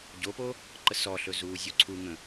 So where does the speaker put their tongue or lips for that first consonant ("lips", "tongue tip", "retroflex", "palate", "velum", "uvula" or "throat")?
palate